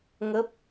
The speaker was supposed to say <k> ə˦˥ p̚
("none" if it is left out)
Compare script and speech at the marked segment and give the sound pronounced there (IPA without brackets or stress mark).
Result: ŋ